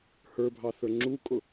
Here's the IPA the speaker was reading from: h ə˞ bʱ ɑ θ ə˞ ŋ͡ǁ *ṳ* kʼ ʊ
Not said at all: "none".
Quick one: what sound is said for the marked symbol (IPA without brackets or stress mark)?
u